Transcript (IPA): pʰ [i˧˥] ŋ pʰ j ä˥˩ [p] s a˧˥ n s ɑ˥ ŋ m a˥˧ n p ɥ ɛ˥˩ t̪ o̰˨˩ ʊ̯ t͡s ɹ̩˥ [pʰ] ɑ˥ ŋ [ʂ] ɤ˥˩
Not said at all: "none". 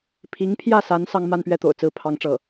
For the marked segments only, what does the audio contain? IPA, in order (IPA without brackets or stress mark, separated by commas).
i˧˥, none, pʰ, ʈ͡ʂ